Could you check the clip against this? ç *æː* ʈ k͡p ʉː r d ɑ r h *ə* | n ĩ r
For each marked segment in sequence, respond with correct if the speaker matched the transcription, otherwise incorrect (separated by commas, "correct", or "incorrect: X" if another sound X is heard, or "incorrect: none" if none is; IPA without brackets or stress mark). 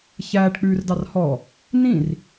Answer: correct, incorrect: ɔ